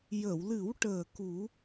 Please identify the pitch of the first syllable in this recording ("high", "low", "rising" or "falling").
low